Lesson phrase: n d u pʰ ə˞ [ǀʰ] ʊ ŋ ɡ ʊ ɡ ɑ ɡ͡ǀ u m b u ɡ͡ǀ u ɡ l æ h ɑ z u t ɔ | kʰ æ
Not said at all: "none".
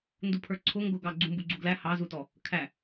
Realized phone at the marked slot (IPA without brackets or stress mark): ǀʰ